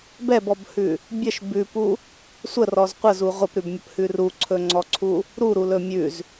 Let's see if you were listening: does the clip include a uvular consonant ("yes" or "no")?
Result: yes